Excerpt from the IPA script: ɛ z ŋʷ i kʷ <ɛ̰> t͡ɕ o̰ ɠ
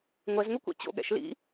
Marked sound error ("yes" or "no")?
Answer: no